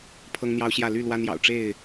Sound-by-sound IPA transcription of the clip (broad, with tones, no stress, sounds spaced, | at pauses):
pʰ ɤ˦ ŋ n̪ j ɑ˦ ʊ̯ ɕ j ä˥˨ l y˥˨ l w a˦ n j ɑ̰˨˩ ʊ̯ ʈ͡ʂ e˥˨ ɪ̯